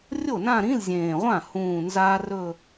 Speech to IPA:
rʲ o˥˩ n ã˥˧ ɾ ĩ˧˥˧ l zʲ ẽː˨˩ ʁʷ ã˥˩ h ũː˨˩ n z aː˧ r ɵ˥˧

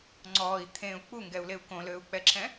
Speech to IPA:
ŋ͡ǀ ɔː i̯ t̪ʰ ẽ u̯ k͡p u ŋ ɡ ɛ u̯ l e u̯ k õ l øː u̯ k͡p ɛ ǁʰ ɛ̃

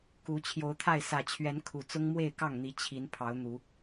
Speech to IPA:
k u˨˦ t͡ɕʰ j o˨˦ ʊ̯ t̪ʰ a˥˨ ɪ̯ s ä˨˩ t͡ɕʰ ɥ ɛ˨˦ n kʰ u˨˩ t͡s ʊ˦ ŋ m w e˥˨ ɪ̯ k ɑ˥˨ ŋ n̪ i˨˦ t͡ɕʰ i˨˦ n pʰ ɑ˨˦ ʊ̯ n̪ u˨˦

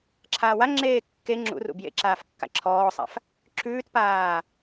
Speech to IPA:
ǁʰ aː w a ŋ͡ǁ eː kː e ŋ͡ǁ ṵ r ṵ b j ḛ ǁ aː f kː a̰ ǁʰ ɔː sˤ a̰ f | ǁ ʉː t p aː

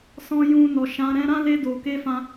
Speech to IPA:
s ɔ̃˧ j ũ˧ n ɔ˨ ʃ ã˨˦ ɾ ɛ̃˧ ɾ ã˦ l e˧ d o˨ k e˧ f ã˧

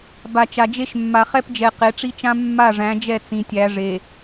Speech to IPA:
b a˨ t͡ʃ a˨ d͡ʒ e˦ ʃ mː a˨ χ ɛ˦ p d͡ʒ ɛ˨ q e˨˦ ʈ͡ʂ i˦ t͡ʃ ã˦ mː a˦˨ ʐ æ̃˨˦ d͡ʒ ɛ˦˨ t͡s ĩ˨ tʲ æ˨˦ ʐ e˨

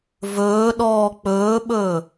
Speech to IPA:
v ɵː ɗ ɔː k͡p ɵː ɓ ɵː

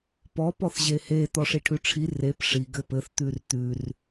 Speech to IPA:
p ɔ p ɔ θ ʑ e h e t̪ ɔ ʂ i ʈʰ ʉ ʈ͡ʂʰ i r e p ʂ i ɡ ɘ p ɘ θ t̪ ʉ r t̪ ʉ r

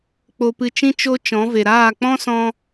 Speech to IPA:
k͡p o˧ p ɨ˧ t͡ʃ ĩ˦ t͡ʃ o˦ t͡ʃ ɔ̃˨˦ v e˨ ɾ aː˦˨ k͡p ɔ̃˦ s ɔ̃˧

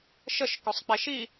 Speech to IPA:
ʃ ə ʃ k o sˤ k͡p e ʃ i

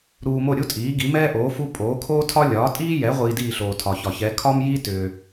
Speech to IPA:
ɾ uː˧ m o˥˩ ɾʲ u˥ tʼ iː˩˥ ɡ i˩˥ m ɛː˥ ʔ oː˩˥ f u˥ pʼ oː˩˥ kʰ oː˥ tʰ ɒ˥ lʲ ɒː˩˥ tʼ iː˥ j ɛ˩˥ ʁʷ iː˧ d iː˥˩ ɬ oː˩ tʰ ɒ˩ ç ɒ˩ ç ɛ˩˥ kʰ ɒː˥ m j iː˥ t ʏː˩

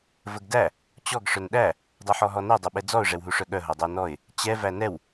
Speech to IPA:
v ə ɡ d æ | t͡ɕ ɔ ɡ ʂ œ n ɗ æ | dˤ u ħ ɔ ɦ ɔ n ɛ dˤ o ɓ ɛ d͡z ɔ ʊ̯ ʐ ɛ w ɦ u ʂ œ ɠ œ ɦ o dˤ ɜ n ɔ ɪ̯ | t͡ɕ ɛ v æ n ɛ w

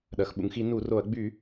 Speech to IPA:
ɗ ɐ˩ x ɓ ṵ˩ ŋ x i˧˩˧ n u˧˩˧ r o˧˩˧ ɐ̯ ɡ͡b y˧˩˧

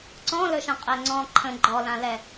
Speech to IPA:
ǀ ɔ̃ l ɵ ʃ ə̃ qʼ ɛ ŋ͡ǀ ɔ̃ ǃʰ ə̃ ɡ͡ǃ ɔ l ã l ɛ

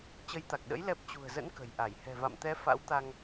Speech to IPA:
t͡ɕ ə˨˦ j t̪ a˨˩ k̚ ɗ ə̰˧˥ j l ɛ˦˥ p̚ t͡ɕ ṳ˨˩ ə̯ z ə̰˧˥ n k ə̤˨˩ j ʔ a˧˩ j h ɛ̤˨˩ v a̰˧˨ m t̪ ɛ˨˦ f a̰˧˥ w t̪ a˧ ŋ

